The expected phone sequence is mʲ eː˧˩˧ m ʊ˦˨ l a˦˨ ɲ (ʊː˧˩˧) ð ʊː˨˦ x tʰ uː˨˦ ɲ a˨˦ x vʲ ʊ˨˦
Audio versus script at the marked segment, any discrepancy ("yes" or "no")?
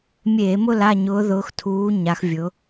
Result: yes